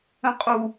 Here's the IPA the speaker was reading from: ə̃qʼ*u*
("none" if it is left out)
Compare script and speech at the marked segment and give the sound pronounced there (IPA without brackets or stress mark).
u